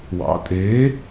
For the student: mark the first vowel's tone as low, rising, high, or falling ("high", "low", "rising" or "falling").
rising